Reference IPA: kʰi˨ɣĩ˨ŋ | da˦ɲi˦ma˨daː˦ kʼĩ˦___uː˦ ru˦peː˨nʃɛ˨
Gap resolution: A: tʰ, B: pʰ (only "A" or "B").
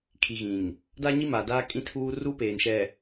A